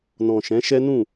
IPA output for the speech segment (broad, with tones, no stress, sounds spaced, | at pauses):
n ɔ̃˨ ʃ ɛ̃˨˦ ʃ ɛ˦ n ũ˦˨